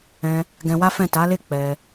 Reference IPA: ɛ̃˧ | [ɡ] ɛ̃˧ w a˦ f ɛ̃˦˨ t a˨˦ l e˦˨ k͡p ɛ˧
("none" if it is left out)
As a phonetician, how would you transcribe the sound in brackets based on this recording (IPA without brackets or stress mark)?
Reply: ɡ